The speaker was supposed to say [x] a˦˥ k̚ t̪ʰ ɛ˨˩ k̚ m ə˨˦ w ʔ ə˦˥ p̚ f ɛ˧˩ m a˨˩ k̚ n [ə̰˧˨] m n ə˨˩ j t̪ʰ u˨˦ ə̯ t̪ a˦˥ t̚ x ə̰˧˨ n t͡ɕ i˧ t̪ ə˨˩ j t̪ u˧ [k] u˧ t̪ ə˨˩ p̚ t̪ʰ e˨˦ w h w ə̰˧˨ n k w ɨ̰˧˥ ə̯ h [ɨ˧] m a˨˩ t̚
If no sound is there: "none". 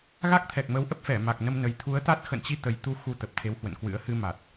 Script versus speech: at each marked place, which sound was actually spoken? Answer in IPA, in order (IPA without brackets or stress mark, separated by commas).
ɣ, ə˧, x, ɨ˧